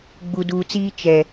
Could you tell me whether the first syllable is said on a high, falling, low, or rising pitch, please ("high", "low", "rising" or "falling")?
low